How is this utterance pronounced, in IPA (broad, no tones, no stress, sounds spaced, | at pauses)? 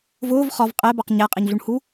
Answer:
v ʊː v χ ɒ v qʼ ɛ b ɑ q ɲ æ qʼ ɛ ɲ ɮ u ɳ h u